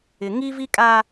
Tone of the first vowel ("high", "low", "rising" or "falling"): low